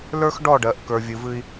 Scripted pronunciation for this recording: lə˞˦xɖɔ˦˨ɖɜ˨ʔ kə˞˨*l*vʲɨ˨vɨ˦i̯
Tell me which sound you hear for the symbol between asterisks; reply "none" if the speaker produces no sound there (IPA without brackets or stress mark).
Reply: none